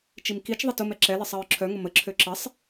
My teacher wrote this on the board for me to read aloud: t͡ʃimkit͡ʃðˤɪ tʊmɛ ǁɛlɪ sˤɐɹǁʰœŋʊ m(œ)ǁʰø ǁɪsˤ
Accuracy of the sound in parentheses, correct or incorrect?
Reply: incorrect: ə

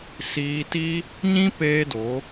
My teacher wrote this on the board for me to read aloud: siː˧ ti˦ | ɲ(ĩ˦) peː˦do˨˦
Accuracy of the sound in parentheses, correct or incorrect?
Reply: correct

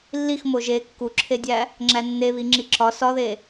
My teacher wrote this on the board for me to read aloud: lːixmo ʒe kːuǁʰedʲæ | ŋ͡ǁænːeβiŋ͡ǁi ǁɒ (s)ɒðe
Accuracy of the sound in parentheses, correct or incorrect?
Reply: correct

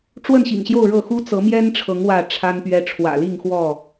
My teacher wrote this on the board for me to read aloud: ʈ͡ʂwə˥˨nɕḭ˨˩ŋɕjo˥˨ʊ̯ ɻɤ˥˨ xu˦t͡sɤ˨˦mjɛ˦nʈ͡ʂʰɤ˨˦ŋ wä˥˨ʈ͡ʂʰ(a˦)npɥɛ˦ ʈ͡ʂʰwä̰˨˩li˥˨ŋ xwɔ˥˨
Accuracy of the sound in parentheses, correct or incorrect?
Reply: correct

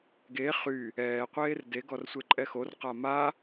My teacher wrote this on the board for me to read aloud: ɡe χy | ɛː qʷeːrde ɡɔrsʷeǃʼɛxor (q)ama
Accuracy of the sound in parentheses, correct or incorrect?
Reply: correct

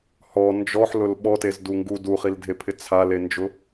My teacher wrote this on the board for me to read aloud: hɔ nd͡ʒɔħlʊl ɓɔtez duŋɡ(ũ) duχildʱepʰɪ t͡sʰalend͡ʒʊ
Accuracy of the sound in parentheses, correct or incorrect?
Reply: incorrect: u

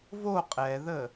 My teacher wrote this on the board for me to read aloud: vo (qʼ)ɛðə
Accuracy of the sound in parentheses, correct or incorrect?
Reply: correct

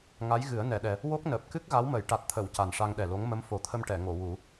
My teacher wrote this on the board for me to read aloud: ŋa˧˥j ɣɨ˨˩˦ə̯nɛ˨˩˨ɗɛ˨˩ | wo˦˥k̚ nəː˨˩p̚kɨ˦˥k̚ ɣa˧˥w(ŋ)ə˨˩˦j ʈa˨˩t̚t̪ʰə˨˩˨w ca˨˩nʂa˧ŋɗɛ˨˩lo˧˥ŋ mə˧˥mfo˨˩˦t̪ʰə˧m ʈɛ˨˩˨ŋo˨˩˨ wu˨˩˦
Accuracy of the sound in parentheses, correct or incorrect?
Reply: incorrect: m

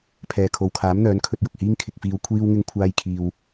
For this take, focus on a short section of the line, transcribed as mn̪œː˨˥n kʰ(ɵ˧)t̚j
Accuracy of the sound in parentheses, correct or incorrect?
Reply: correct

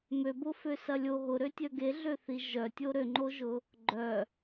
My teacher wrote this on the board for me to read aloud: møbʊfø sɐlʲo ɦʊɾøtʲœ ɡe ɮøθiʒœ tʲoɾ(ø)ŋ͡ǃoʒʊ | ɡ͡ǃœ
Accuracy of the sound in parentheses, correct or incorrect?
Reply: correct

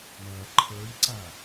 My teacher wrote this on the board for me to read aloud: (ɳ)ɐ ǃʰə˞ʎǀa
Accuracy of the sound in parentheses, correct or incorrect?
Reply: correct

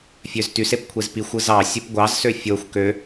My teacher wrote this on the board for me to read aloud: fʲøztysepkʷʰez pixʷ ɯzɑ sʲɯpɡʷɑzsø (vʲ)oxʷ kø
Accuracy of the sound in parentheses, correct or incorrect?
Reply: incorrect: fʲ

